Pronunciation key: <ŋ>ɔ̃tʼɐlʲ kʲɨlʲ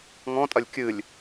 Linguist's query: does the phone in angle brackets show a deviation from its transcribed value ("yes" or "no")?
no